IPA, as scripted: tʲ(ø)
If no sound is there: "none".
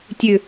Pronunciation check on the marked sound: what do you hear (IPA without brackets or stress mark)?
ø